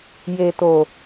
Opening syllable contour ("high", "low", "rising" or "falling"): low